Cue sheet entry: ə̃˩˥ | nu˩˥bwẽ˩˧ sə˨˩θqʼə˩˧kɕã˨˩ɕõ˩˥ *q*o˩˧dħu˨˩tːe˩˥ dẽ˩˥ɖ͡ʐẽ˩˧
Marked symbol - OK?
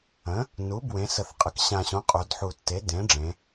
no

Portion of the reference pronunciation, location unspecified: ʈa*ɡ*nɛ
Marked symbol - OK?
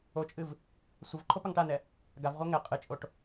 no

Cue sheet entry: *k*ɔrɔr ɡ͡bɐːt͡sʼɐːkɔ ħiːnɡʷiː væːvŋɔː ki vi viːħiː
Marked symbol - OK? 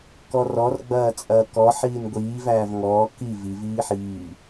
yes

